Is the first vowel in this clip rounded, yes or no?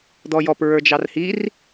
yes